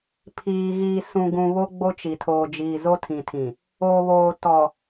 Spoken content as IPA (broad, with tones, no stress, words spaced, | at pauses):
pʰiː˨ɣiː˨ sũ˨ɡũ˨ βo˦ɡ͡bo˦t͡ʃi˨tʰoː˨ d͡ʒiː˨zo˦tʰĩ˨tʰĩ˨ | o˨βoː˨ tɔ˨